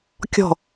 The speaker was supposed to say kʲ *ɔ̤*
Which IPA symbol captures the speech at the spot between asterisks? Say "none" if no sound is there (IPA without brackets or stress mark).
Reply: ɔ̤